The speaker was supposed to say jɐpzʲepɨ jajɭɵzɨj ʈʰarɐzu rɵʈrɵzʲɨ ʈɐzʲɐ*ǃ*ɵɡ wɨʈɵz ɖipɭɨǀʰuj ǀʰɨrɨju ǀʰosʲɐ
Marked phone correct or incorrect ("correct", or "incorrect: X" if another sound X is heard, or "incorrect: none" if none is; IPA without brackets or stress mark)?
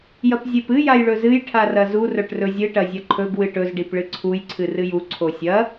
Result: incorrect: ǃʰ